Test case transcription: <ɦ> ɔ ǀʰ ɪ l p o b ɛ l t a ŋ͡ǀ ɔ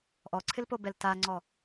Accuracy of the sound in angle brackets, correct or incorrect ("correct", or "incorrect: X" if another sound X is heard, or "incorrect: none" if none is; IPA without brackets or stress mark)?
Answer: incorrect: ʔ